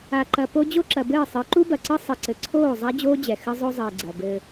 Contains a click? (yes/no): yes